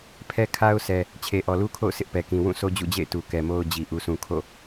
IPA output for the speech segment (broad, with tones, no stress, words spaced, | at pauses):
pʰɛ˦kʰa˦ʊ̯sʰɛ˨ | t͡ɕʰe˨ʔɔ˨lu˦kʰo̰˦˨ʊ̯ sɪ˦ʔpɛ˨kĩ˨ wũ˦˨sʰo˦ d͡ʑṵ˦˨d͡ʑḛ˦˨ɪ̯ tu˨kɛ˨mo˦ʊ̯d͡ʑi˨ ʔu˨sũ˨ kʰo̰˦˨